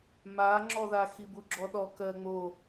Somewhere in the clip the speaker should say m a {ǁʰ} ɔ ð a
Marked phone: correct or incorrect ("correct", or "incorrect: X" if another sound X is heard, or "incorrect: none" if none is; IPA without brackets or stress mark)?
incorrect: ŋ͡ǁ